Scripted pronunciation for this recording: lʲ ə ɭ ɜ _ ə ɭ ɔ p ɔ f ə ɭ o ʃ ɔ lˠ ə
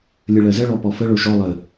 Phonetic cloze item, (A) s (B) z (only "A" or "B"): B